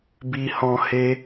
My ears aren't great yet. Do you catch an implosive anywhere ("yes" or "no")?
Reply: no